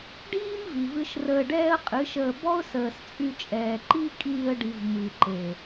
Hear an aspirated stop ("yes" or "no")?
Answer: no